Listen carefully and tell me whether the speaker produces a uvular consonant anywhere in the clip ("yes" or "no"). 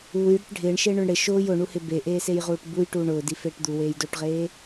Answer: yes